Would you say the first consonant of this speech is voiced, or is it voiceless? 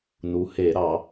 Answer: voiced